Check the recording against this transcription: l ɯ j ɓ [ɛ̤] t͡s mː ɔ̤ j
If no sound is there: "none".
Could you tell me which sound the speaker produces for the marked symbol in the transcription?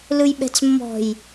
ɛ̤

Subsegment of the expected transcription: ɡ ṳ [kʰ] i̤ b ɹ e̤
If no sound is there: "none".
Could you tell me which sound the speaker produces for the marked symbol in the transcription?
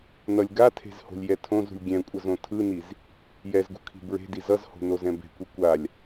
kʰ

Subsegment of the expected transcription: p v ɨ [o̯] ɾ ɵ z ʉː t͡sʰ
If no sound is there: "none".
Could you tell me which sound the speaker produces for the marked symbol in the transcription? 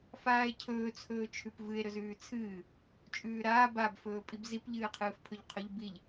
e̯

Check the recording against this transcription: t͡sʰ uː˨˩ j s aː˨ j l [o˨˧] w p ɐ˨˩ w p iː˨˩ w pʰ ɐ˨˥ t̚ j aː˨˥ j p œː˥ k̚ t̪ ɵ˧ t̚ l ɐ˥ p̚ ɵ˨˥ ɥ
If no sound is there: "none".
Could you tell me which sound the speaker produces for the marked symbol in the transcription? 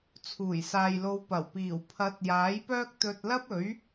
o˨˧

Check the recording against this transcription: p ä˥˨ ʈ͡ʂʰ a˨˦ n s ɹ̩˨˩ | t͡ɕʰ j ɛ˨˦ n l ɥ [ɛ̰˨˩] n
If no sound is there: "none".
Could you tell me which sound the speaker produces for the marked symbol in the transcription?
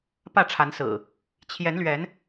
ɛ˨˦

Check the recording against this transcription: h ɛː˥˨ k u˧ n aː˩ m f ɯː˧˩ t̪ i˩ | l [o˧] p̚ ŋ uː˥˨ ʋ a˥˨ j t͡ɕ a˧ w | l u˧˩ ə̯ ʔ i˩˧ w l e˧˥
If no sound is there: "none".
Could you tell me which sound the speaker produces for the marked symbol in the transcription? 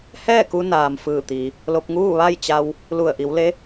o˧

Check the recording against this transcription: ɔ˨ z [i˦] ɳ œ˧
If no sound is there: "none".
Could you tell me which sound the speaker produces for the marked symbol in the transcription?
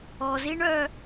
i˦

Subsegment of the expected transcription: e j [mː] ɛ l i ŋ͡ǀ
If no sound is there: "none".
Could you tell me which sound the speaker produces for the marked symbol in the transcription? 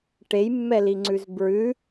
mː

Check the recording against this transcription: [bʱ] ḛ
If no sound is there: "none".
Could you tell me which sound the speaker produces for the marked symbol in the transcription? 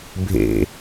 bʱ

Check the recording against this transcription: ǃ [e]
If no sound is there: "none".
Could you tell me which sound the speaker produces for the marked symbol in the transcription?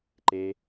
e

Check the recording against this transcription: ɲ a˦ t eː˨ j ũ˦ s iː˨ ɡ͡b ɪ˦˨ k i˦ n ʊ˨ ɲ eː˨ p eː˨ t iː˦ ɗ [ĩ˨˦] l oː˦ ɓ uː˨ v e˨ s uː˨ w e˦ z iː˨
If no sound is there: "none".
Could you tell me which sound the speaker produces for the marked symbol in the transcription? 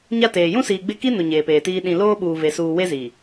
ĩ˨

